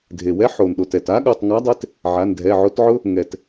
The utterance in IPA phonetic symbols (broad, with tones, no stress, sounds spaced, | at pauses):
dʱ e˩ w ɛ˨˥ ħ o˩ n ɗ o˩ t ɛ˩ t a˨˥ ɠ o˩˧˩ tˤ ŋ a˨˥ dˤ e˨˥ t | ʕ a˩˧˩ n dʱ ɛ˩˧˩ ʕ o˨˥ t ʕ ʊ˦˥ | ŋ ɛ˩ t